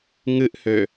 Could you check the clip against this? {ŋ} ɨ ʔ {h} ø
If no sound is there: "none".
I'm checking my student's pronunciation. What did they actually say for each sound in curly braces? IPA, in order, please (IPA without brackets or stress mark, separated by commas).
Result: ŋ, h